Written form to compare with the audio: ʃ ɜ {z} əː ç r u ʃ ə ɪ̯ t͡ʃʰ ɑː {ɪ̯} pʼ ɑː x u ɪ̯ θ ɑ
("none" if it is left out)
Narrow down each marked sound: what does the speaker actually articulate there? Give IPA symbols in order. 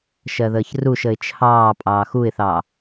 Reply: ð, none

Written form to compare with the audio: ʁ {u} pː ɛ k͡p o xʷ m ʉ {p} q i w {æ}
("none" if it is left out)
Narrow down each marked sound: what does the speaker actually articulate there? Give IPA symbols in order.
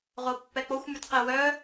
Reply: o, t, œ

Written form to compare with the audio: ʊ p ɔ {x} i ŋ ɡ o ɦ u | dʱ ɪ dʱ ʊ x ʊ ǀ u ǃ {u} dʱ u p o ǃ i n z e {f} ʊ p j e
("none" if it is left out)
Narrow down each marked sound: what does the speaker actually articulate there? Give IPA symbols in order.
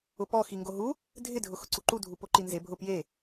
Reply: x, u, bʱ

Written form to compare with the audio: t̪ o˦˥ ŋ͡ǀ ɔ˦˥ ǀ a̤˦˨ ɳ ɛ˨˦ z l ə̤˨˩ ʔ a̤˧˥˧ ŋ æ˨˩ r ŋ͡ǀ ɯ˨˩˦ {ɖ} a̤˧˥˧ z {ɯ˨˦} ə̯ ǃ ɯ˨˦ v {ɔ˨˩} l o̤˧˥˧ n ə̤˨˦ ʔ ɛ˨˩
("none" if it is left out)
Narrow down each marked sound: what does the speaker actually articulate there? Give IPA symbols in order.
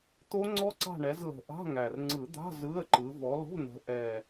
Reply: d̪, ɯ˧˥˧, ɔ˨˦

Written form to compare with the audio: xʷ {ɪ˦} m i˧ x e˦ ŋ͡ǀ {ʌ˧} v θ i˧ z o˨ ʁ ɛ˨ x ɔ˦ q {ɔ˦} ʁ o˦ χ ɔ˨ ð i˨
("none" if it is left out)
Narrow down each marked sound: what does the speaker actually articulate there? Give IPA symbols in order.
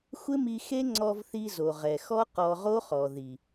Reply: ɪ˦, ɔ˧, ɔ˧

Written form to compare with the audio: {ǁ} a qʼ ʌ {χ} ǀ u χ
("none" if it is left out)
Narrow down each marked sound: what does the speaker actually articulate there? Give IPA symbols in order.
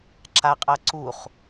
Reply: ǁ, none

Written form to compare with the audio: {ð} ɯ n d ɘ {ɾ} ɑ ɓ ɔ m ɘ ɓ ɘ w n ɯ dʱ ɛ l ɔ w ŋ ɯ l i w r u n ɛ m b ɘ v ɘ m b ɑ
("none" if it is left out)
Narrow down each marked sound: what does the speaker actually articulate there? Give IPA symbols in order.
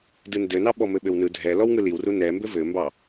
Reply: d, n

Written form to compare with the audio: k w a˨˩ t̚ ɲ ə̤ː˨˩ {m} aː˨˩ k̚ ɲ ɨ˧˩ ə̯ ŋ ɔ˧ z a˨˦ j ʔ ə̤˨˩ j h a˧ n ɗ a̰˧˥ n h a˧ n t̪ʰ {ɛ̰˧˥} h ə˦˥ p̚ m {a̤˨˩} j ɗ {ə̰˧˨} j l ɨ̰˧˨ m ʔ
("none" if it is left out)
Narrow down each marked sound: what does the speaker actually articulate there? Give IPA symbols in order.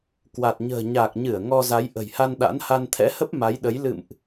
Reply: ɲ, ɛ̰˧˥, a˨˦, ə˨˦

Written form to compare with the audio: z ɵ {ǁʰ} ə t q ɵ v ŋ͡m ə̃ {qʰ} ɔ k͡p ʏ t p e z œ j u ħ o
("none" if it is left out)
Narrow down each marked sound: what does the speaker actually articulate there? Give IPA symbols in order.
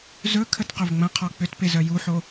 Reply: kʰ, qʰ

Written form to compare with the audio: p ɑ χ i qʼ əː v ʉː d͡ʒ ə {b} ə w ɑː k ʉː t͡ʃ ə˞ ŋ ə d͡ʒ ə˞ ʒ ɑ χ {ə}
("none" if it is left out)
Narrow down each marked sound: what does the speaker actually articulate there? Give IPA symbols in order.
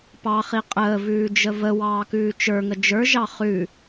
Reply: v, ʉ

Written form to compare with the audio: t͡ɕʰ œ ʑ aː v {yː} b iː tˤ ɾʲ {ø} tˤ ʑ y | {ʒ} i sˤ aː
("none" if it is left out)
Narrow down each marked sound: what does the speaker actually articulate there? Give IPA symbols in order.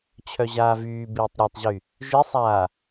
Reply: yː, œ, ʒ

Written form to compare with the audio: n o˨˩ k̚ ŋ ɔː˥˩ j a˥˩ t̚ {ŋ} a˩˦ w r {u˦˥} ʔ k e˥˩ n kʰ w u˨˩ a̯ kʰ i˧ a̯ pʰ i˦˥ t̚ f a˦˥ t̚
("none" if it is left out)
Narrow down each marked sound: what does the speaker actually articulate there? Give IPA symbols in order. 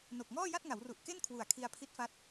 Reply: ŋ, u˨˩

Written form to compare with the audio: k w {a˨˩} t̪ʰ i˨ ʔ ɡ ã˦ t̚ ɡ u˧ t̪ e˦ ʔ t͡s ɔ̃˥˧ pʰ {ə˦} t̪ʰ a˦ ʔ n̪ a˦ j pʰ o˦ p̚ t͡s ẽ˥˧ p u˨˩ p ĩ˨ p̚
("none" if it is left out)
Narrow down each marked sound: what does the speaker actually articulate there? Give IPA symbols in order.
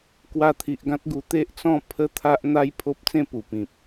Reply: a˧, ə˦

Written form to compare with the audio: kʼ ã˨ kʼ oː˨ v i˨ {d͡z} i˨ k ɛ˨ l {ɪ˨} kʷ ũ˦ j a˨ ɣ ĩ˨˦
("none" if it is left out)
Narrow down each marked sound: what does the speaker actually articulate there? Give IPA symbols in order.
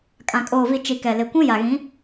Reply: t͡ʃ, ɪ˨

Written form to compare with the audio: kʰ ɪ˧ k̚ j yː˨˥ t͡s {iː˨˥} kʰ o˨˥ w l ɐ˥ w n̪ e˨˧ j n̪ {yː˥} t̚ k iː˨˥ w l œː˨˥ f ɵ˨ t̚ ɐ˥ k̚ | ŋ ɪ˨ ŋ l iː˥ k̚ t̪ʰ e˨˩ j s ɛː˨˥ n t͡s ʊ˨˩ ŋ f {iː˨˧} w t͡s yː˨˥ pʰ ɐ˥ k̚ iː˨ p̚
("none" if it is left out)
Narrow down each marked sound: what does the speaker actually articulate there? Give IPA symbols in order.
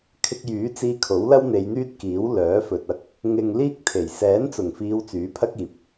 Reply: iː˧, yː˥, iː˨˧

